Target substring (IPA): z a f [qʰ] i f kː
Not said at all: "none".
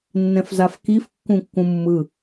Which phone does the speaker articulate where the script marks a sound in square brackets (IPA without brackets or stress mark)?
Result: k